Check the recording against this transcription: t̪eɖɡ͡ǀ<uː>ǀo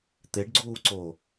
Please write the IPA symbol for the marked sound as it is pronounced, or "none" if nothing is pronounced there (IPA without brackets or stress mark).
uː